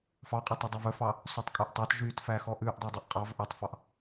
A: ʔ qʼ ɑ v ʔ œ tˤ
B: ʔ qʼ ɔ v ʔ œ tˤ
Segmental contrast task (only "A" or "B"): A